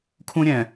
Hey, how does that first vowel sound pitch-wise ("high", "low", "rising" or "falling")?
high